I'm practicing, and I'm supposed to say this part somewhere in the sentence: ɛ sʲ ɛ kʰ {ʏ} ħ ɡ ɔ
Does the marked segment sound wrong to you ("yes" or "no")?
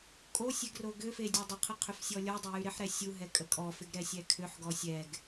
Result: no